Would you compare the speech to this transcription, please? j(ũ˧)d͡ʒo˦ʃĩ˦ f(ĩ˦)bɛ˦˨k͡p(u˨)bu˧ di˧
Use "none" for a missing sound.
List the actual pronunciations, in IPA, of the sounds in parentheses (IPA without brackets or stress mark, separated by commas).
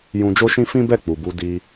ũ˧, ĩ˦, u˨